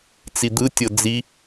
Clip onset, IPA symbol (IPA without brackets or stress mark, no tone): t͡s